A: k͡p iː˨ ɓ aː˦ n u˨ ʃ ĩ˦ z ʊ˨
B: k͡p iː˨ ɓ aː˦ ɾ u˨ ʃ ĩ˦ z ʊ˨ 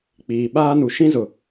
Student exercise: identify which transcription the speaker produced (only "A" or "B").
A